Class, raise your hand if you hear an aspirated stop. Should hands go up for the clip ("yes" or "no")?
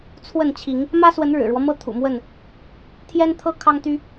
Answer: yes